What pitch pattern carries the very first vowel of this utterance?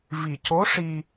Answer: low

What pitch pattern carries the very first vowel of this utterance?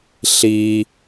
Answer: low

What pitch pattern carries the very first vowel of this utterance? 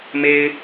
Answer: high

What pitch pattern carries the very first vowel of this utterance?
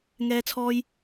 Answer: high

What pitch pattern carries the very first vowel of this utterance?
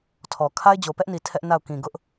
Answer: low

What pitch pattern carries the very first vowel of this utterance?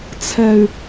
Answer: low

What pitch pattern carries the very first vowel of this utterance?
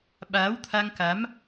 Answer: rising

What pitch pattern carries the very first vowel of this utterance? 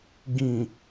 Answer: low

